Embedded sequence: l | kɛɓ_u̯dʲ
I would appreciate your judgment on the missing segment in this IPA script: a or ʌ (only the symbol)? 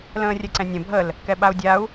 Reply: a